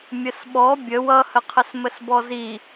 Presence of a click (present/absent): absent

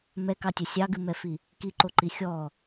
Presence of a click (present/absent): present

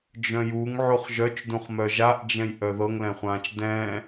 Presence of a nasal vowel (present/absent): present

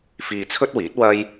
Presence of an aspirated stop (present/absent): present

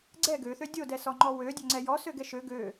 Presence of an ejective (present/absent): absent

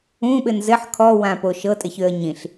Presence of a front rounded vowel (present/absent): present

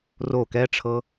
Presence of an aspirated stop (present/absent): present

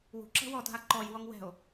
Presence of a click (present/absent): present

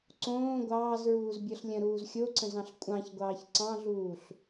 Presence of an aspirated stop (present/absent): absent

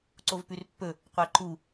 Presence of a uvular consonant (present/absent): present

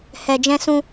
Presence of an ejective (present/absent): absent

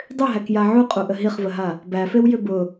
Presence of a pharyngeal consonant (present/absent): present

